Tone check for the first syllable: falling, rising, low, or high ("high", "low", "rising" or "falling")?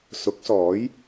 rising